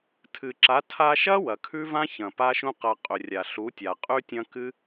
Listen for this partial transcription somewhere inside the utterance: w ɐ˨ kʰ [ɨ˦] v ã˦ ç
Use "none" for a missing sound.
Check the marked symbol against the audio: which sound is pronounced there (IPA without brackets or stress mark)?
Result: ʉ˦